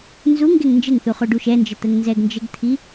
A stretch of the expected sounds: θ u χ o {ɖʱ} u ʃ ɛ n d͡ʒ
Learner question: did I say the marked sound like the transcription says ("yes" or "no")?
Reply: no